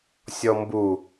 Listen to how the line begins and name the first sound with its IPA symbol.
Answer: sʲ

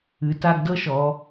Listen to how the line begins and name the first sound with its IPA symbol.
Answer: ɨ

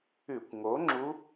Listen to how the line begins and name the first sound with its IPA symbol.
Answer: ʉ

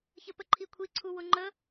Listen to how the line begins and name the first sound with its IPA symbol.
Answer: ç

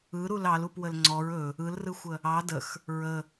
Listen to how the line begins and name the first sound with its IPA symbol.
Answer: ɯ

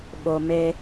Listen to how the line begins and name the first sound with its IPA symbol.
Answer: ɓ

